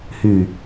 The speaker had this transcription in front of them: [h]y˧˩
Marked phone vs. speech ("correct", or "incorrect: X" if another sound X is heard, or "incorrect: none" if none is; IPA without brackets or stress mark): correct